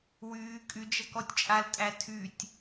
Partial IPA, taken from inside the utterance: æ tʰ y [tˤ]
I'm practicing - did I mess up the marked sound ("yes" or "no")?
yes